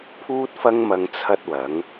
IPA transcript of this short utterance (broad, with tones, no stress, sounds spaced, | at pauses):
pʰ uː˥ t̚ f ɐ˥ ŋ m ɐ˧ ŋ t͡sʰ ɐ˥ t̚ w ɐ˨˥ ŋ